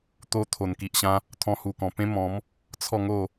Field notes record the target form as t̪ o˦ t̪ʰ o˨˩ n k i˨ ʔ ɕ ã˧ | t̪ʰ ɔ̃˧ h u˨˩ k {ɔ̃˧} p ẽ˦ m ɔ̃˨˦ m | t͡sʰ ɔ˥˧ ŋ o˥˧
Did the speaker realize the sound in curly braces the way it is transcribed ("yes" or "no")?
no